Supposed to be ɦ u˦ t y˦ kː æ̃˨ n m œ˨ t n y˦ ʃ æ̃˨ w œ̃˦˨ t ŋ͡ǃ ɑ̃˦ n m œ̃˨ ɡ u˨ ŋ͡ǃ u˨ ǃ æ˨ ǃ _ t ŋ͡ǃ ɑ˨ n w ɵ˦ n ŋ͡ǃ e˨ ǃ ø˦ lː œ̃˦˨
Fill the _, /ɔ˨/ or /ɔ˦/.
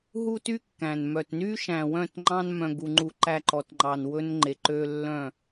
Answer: ɔ˨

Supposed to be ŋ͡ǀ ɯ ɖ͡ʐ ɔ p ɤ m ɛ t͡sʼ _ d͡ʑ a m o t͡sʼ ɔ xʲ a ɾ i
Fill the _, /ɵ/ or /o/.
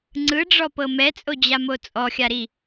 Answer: o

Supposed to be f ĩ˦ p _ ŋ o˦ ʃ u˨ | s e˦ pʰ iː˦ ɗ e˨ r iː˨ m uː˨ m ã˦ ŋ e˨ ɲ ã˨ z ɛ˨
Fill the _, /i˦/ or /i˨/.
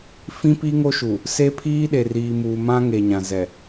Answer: i˦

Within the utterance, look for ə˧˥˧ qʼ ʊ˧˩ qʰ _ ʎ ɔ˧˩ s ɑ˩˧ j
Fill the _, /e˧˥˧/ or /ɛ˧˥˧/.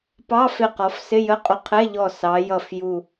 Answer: ɛ˧˥˧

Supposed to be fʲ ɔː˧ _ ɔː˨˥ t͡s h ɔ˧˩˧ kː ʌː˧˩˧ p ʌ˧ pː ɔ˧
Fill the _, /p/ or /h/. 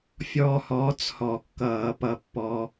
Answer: h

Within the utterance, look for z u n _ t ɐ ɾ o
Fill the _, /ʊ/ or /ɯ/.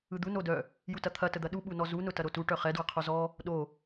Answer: ʊ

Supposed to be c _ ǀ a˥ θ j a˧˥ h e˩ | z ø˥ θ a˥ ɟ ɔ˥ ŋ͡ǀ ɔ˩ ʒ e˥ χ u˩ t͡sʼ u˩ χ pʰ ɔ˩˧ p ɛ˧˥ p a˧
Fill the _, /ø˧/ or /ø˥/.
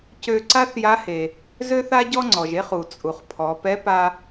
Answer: ø˧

